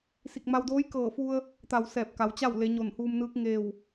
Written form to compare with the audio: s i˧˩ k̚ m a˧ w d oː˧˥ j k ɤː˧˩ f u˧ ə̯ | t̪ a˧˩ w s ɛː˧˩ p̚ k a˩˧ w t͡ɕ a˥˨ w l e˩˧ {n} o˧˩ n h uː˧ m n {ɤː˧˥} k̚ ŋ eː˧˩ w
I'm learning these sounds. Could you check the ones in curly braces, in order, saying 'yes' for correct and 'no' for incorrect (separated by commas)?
no, no